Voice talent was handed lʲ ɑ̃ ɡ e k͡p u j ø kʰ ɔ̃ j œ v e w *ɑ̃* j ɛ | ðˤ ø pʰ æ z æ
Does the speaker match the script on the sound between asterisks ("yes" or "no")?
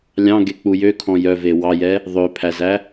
no